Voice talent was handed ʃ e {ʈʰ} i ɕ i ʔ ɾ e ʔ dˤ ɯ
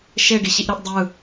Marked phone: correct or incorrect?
incorrect